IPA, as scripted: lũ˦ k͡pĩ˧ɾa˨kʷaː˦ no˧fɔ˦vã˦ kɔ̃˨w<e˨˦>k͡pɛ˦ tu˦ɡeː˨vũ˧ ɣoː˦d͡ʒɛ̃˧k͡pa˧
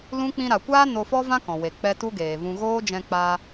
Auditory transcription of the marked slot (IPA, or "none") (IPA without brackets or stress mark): e˨